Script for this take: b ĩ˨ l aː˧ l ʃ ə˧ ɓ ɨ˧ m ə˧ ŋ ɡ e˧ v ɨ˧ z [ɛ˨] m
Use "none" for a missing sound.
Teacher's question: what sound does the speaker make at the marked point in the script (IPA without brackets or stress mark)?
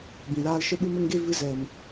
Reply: ɛ˨